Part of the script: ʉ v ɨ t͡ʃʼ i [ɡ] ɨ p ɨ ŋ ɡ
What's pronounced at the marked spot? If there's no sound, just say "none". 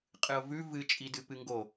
d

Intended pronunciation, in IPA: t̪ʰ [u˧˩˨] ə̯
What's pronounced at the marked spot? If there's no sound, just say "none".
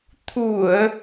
u˧˩˨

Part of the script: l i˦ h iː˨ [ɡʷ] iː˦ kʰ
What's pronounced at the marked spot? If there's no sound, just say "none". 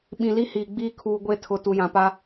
ɡ͡b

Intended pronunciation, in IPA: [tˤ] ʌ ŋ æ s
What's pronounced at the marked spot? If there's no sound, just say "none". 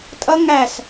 tʼ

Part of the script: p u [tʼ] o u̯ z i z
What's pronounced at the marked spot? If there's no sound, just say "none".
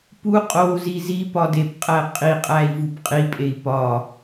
qʼ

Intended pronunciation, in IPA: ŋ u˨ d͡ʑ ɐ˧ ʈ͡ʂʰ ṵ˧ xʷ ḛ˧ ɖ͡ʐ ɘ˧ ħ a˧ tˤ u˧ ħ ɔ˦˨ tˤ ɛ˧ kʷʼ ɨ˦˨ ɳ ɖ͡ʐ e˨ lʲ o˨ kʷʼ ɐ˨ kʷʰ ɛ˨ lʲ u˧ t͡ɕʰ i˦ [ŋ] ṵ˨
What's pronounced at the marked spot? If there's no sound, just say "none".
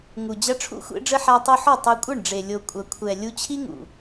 ŋ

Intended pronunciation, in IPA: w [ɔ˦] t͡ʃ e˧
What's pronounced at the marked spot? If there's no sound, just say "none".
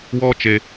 ɔ˦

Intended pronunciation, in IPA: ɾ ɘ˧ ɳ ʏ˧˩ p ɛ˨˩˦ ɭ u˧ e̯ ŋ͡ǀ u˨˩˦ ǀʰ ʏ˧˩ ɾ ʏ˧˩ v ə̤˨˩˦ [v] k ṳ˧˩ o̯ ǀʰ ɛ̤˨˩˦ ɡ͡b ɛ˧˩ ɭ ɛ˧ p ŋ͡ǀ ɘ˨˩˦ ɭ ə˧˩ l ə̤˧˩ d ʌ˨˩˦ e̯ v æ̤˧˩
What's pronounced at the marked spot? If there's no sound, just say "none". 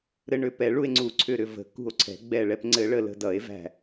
none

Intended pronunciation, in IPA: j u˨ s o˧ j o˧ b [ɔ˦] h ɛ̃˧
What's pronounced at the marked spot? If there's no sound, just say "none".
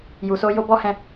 ɔ˦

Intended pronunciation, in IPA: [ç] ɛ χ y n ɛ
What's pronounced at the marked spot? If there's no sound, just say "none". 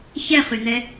ç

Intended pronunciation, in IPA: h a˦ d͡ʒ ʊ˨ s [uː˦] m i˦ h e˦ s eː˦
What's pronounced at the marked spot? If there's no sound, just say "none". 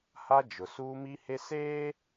uː˦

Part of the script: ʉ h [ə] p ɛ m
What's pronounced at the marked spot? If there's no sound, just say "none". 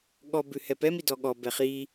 ɛ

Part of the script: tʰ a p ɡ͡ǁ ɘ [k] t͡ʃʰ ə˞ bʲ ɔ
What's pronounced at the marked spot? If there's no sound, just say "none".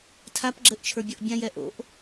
ʔ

